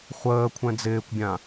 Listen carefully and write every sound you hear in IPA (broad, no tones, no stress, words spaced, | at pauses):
χʷəː kʷʰɛ̃d͡zɪːkʷbʲã